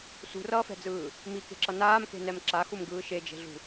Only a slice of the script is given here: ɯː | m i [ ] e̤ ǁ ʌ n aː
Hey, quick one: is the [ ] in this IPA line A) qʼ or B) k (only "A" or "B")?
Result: B